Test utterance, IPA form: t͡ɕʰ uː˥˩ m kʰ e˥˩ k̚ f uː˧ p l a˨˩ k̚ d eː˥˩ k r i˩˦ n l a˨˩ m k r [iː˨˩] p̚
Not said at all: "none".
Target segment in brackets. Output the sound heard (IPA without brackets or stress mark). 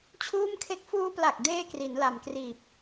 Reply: iː˨˩